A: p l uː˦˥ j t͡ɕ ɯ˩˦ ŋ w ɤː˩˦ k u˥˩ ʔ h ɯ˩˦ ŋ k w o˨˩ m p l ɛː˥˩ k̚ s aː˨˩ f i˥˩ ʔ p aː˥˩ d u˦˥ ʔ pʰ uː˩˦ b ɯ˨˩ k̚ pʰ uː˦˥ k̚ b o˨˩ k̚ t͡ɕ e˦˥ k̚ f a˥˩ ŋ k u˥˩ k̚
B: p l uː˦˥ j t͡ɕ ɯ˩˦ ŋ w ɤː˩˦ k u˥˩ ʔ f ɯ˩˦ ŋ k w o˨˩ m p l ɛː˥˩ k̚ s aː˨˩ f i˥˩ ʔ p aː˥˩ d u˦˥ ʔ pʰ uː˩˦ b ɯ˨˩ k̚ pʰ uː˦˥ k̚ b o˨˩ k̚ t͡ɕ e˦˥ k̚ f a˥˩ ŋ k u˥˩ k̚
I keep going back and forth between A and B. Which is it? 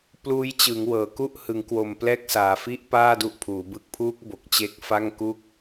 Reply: A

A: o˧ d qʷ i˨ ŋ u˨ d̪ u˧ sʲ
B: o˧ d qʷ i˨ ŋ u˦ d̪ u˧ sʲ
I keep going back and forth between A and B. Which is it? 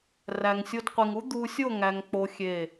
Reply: B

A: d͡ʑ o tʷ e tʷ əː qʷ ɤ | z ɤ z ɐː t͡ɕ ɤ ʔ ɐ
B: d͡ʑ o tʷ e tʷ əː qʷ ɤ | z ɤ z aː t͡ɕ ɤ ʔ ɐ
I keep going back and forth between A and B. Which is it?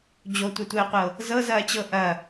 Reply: A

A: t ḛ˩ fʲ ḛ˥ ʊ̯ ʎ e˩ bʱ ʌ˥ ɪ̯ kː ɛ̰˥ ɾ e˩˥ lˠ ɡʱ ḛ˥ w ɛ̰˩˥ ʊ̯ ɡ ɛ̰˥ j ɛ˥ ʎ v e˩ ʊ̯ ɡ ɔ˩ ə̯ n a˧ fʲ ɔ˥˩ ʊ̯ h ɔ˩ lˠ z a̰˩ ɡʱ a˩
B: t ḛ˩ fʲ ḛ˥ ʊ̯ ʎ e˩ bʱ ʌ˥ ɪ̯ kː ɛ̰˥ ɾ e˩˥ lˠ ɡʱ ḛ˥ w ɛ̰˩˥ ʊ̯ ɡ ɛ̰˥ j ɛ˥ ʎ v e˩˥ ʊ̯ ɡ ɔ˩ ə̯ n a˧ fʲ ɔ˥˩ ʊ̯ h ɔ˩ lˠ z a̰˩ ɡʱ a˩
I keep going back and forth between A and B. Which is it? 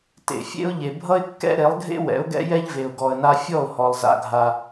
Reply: A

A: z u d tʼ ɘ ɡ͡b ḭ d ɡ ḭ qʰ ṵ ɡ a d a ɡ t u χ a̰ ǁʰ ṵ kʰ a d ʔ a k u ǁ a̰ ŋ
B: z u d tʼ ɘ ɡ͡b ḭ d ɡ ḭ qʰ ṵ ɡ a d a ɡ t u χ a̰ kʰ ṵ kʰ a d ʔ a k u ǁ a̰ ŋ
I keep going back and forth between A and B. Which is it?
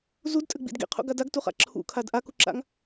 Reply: A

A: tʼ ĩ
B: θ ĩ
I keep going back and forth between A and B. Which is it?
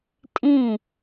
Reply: A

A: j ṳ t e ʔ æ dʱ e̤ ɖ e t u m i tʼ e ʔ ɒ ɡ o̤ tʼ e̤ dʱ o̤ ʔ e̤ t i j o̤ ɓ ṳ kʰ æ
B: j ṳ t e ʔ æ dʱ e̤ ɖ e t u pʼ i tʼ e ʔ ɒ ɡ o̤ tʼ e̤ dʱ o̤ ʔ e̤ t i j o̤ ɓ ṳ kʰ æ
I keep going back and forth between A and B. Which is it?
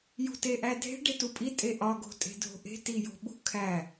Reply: B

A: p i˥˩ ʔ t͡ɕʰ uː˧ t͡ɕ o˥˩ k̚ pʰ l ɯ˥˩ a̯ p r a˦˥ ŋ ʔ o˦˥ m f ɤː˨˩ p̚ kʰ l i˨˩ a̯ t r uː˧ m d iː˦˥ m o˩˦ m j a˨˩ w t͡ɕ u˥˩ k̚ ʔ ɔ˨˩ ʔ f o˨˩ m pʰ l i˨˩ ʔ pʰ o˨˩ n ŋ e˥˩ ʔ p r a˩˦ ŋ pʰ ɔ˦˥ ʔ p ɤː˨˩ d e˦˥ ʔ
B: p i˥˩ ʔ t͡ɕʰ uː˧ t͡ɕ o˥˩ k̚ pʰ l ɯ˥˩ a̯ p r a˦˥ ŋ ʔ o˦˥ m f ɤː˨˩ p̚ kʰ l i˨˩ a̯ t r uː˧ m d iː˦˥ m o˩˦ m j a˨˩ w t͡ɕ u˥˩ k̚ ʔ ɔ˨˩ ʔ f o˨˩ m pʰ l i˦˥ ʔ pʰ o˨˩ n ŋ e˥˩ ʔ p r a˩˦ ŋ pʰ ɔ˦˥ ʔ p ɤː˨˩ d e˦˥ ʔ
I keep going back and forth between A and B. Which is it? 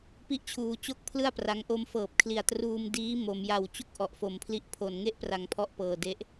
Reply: B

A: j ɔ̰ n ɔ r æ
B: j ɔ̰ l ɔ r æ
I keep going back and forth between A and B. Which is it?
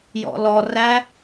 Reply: B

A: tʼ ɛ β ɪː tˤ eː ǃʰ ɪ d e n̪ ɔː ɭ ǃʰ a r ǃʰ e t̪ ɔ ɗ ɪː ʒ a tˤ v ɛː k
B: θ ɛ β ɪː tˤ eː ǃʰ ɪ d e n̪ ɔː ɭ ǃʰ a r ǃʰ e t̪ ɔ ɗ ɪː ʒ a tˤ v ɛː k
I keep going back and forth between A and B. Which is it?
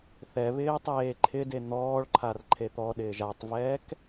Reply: B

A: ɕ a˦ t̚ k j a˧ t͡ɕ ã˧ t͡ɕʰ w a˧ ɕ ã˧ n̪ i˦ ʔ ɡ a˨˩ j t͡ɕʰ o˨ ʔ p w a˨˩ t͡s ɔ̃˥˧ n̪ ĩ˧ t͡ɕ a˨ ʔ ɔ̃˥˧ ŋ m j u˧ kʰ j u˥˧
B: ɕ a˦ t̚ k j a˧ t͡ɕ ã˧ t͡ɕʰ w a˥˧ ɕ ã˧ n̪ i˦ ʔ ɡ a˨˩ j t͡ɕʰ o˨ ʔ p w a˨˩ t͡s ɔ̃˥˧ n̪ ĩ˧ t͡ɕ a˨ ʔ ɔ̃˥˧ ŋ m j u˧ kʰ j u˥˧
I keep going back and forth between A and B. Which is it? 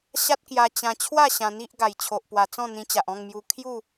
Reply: B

